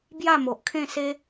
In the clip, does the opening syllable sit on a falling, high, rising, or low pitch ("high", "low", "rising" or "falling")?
falling